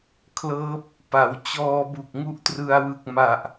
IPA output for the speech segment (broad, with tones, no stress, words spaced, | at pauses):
kʰlɤː˦˥p̚ | pa˩˦w t͡ɕɔː˧bu˨˩k̚ ŋu˥˩ʔtrɯ˧a̯wɯ˨˩k̚ ma˨˩ʔ